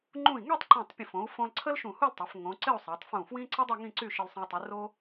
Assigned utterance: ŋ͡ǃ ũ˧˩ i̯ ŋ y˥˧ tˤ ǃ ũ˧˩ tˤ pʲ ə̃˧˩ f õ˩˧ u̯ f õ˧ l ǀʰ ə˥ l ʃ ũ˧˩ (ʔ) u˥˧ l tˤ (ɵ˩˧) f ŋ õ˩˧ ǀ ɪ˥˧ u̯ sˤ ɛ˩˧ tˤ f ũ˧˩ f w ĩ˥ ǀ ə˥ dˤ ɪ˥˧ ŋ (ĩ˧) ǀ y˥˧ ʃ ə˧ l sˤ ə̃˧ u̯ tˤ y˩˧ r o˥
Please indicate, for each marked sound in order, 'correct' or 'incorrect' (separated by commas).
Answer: incorrect, incorrect, incorrect